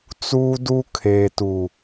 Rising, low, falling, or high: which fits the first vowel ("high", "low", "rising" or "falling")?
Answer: high